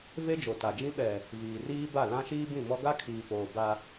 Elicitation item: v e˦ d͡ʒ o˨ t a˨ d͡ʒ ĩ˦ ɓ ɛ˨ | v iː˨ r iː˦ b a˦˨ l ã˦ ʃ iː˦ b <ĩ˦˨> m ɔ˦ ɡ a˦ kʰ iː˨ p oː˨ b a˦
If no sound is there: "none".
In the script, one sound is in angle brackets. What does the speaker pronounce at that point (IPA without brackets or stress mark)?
ĩ˦˨